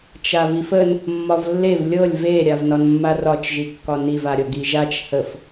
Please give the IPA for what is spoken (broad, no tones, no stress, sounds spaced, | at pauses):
t͡ʃ a v i f ə n | mː ɒ v lː e v lʲ ɤ lʲ v e ɾʲ a v n ɒ n mː a r ɒ t͡ʃ ʒ i kː ɒ n i v a ɾʲ ɤ ɡ i ʒ a t͡ʃ h ə f